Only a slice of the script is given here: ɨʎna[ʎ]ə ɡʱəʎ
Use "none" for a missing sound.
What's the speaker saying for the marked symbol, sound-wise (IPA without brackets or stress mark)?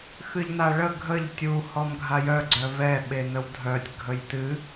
ɭ